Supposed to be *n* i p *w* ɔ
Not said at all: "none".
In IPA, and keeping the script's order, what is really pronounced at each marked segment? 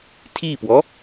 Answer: tʰ, w

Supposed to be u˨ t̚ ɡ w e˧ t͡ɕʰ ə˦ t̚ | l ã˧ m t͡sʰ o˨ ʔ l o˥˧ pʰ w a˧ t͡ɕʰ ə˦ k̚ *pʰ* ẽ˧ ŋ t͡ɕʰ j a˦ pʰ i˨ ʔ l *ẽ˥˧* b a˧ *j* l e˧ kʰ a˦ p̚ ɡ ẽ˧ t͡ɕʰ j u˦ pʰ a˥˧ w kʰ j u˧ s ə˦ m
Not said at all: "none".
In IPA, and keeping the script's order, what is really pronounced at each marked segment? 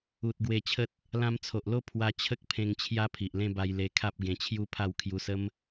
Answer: pʰ, ẽ˥˧, j

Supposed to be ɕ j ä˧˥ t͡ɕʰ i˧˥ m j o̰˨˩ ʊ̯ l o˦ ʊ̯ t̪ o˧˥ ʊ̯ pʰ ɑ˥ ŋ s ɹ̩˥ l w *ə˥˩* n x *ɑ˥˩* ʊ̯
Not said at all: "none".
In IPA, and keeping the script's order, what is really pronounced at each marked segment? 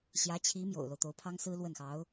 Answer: ə˥˩, ɑ˧˥

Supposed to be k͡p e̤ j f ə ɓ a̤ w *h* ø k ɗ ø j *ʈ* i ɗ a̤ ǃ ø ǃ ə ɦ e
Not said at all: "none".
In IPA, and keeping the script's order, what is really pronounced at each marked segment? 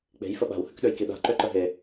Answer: h, k

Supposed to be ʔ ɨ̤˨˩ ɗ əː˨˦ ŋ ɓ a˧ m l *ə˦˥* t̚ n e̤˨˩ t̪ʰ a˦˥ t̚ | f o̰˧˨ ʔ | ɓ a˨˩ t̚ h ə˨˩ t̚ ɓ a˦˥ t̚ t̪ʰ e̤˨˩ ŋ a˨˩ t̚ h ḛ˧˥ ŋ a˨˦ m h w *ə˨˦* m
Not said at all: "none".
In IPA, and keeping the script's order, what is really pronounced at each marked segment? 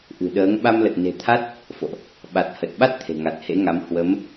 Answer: ə˨˩, ə˨˦

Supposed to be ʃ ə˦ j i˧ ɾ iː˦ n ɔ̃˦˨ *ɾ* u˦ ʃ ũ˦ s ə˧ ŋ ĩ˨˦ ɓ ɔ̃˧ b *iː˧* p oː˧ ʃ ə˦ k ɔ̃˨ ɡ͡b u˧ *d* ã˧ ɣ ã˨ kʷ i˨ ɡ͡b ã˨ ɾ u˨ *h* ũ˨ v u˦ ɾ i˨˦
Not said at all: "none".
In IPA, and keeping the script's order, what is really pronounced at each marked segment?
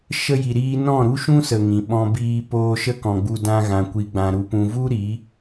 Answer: ɾ, iː˧, d, p

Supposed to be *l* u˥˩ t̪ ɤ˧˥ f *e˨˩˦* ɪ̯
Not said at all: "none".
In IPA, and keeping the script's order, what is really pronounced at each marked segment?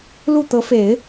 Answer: l, e˨˩˦

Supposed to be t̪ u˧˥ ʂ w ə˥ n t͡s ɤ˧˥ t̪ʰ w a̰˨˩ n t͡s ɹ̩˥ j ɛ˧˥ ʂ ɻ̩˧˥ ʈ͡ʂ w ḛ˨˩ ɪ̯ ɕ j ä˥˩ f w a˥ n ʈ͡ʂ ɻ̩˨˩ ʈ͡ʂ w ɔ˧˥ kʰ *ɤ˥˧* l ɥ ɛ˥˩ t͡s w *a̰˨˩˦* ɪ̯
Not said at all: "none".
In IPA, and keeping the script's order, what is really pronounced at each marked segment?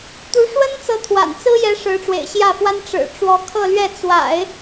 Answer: ɤ˥˧, a̰˨˩˦

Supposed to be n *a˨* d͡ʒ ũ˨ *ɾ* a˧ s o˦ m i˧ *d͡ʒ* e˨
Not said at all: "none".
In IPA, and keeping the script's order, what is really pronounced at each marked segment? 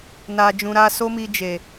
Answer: a˨, ɾ, d͡ʒ

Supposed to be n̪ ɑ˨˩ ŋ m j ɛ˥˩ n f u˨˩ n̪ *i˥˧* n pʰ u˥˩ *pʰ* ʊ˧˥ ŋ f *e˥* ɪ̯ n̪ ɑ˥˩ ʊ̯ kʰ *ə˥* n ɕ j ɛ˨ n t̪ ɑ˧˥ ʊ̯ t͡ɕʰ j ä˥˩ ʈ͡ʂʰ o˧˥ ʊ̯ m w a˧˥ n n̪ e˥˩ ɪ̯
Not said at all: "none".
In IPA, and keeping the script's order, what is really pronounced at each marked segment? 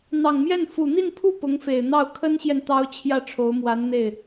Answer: i˥˧, p, e˨˩, ə˥

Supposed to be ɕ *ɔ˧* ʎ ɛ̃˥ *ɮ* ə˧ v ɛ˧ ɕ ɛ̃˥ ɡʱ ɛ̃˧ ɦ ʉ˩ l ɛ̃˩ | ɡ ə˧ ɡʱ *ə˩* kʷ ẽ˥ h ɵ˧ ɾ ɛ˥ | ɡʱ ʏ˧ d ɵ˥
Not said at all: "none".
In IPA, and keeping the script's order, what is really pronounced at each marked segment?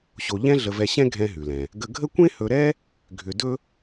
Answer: o˧, ɮ, ə˥

